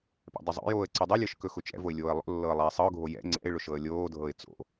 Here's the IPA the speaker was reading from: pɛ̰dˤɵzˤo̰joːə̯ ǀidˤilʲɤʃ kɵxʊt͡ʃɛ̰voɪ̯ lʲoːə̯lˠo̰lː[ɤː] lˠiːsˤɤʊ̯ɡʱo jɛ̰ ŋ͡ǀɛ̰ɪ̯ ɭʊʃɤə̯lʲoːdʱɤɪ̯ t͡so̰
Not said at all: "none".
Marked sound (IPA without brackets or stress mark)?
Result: ɤː